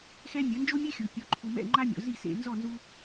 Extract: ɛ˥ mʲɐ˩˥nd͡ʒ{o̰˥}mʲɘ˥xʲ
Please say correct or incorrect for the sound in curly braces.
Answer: incorrect